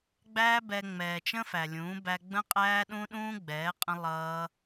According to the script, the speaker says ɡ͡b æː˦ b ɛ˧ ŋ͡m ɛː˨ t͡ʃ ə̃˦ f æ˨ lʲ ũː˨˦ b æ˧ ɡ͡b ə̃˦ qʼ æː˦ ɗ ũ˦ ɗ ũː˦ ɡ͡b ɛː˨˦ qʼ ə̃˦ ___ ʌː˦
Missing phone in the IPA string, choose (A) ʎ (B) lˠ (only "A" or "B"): B